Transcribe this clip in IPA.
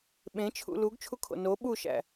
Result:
ɓ ẽ t͡ʃʰ ṵ l u ɡ t͡ʃʰ u kʰ o̰ n o ɓ u ʃ æ̰

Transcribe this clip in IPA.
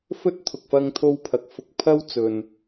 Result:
f ɵ˥ t̚ t̪ʰ ʊ˨ k̚ f ɐ˧ ŋ t̪ʰ o˧ w pʰ ɐ˨ k̚ f ʊ˧ k̚ pʰ ɐ˥ w t͡s ɵ˧ n

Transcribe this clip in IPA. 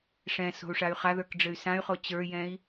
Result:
ʂ ɛ̃ s o̤ u̯ ʂ a y̯ χ a ð ə˞ k ɖ͡ʐ ɘ y̯ s ã y̯ χ o t͡ɕ ə˞ j ɛ̃ i̯

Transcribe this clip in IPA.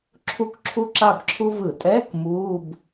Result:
ǁʰ u˥˨ k ǁʰ u˥ ǁ a˥˨ b ǁʰ u˥ v ɯ˧˩˧ tʼ ɛː˧˥˧ k m uː˧˥˧ b

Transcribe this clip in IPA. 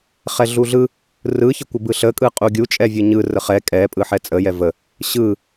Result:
χ ɛ ɮ u ɮ ɯ | r ɯ ç ə kʷ ə b ɯ ɬ ə kʼ ɯ qʼ u ɡʲ u t͡ʃʼ ɛ vʲ ɯ ɲ ɯ r ə χ ɛ kʼ ɛ pʼ ɯ ħ ɛ t͡sʼ ə j ɛ v ə | ɕ ɯ

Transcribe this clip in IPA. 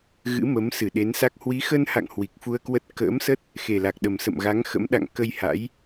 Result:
ɣ ɨ̰˧˥ m ə˨˦ m s ɨ˧˩ ɗ e˨˦ n s a˦˥ k̚ h w i˨˦ x ə˧ n h a̰˧˨ ŋ h w i˨˩ k̚ f u˧ ə̯ k w ə˦˥ t̚ k ə̰ː˧˥ m s ə˦˥ t̚ | x e˨˩ l a˨˩ k̚ ɗ ə˨˩ m s ə̰˧˨ m ɣ a˨˦ ŋ x ə̰˧˥ m ɗ a̰˧˨ ŋ k ə˧ j h a̰˧˥ j

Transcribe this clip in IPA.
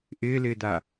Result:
ʔ ɪː l ɪː d a

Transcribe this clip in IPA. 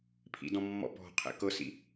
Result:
pʰ ḭ d ɔ̃ mː ɔ̰ p ɔ̤ qʰ ɛ̰ k ɤ s ḭ

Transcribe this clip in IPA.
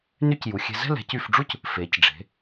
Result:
n y˥˧ c j u˩˧ xʲ ɛ̤˧ z ɛ̤˥˧ l ɛ̤˩˧ c y˧˩ f ɖ͡ʐ u˥˧ c | f e˩˧ c ɖ͡ʐ e̤˩˧

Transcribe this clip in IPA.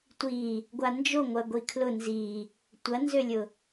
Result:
tʷ i | ɡʷ a n d͡ʒ o ŋʷ ɐ ɡʷ i kʰ l ʊ n z i | tʷ ɐ n z ø lʲ ʊ

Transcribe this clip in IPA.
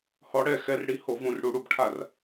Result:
h ɔ˨˦ ɽ ɛ˥˩ x ɛ˨˦ r ɽ i˨˦ h o˧˩ v ũ˧˩ r ɽ u˧˩ ɽ u˥˩ b ʈʰ a˥˩ r

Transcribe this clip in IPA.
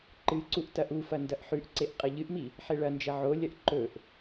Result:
ǃ ɨ ǀ u ʔ t ɐ ʔ u f ɐ n d ɐ ʔ ħ ʉ ʔ ǀ e ʔ qʼ ɐ ʎ ɨ ʔ m i | ħ e ɭ ɐ n d͡ʒ ɐ ʕ o lʲ ɐ ʔ ǃ ɵ ʔ

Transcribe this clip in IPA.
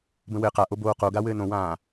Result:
b ə̃ w ɘː q a ʔ o b oː q o ɡ a w ɘː n õ w ãː

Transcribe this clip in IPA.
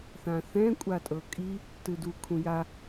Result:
θ ã θ ɛ̃ kʷʼ a tʼ ɤ kʼ i | t ɯ d u kʰ ũ j a

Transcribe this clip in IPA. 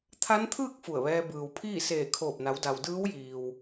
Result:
t̪ʰ a˧˥ n t̪ʰ ɯː˥˨ k̚ f u˧˩ ə̯ ʋ ɛː˧ b ɯː˩ w pʰ iː˥˨ s eː˧˩ kʰ oː˧˩ p̚ n a˩˧ w d a˩ w d ɯː˧˥ w j iː˩ w

